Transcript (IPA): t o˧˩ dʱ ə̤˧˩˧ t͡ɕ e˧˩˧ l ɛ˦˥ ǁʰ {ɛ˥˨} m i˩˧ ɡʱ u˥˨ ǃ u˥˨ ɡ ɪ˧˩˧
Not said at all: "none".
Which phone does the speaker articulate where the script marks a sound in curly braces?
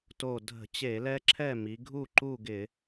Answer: ɛ˥˨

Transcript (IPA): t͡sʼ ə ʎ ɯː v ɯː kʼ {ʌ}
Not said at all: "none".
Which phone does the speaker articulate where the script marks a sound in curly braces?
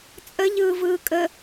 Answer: ə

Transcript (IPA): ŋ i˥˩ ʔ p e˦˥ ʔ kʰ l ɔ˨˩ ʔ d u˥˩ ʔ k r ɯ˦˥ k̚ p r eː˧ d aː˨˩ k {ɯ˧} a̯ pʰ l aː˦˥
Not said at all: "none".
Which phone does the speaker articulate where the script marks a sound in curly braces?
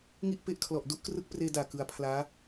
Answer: ɯ˧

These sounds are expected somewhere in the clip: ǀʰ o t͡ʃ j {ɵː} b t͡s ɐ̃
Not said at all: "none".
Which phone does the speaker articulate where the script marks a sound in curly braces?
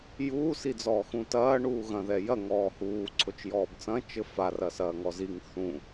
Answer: ɔː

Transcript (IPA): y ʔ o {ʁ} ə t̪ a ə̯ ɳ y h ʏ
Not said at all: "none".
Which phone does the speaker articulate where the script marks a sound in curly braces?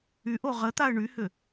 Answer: ʁ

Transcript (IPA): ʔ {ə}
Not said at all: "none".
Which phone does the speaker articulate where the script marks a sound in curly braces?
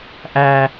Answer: æ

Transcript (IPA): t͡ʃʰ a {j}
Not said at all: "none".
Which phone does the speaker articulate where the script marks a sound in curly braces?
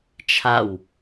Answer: w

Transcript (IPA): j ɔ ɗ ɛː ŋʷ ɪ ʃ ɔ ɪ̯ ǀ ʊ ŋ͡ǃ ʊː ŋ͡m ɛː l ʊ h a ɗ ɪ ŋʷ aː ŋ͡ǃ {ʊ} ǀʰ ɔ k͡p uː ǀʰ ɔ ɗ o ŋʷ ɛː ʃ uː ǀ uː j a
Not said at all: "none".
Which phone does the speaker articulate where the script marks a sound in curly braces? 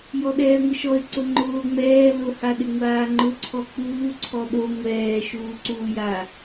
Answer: ʊ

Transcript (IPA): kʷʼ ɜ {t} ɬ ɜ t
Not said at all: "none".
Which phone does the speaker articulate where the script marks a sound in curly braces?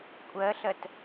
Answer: none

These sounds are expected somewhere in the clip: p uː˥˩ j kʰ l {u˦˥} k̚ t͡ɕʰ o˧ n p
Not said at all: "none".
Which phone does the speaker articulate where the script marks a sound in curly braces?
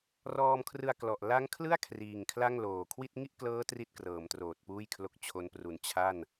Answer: o˦˥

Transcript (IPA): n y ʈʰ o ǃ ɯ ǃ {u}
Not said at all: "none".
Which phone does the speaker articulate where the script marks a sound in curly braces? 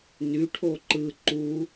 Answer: u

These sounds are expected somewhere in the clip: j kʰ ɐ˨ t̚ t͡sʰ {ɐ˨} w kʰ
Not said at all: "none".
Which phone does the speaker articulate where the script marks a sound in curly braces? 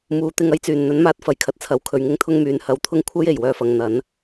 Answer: ɐ˨˧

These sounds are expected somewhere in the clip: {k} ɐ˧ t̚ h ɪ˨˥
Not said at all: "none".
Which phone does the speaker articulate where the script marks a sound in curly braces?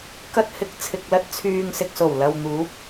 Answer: k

